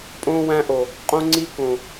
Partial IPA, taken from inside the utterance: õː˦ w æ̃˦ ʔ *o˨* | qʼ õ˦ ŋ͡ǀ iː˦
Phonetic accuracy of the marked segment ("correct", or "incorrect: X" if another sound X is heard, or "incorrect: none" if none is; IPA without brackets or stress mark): correct